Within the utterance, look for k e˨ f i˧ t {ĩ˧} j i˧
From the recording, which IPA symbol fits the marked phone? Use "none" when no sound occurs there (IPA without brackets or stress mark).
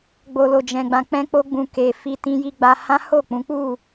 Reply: ĩ˧